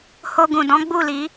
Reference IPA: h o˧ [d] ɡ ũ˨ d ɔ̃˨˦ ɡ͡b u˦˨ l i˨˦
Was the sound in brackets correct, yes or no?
no